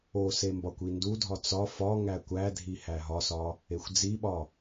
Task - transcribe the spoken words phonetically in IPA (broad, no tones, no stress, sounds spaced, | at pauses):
o s e m b ɒ kʷ i n d u dʱ ɒ t͡s ɒ f ɒ ŋ æ kʷ æ dʱ i h æ ɦ ɒ s ɒ | e xʷ d͡z i ɓ ɒ